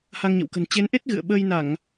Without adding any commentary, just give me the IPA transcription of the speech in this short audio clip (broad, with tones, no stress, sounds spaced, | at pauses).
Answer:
h a˧ ŋ ɲ ə̰˧˨ w k ə̤˨˩ n t͡ɕ e˨˦ n ʔ e˦˥ t̚ ɣ ɨ̰˧˨ ə̯ ɓ əː˧ j n a˧˩˨ ŋ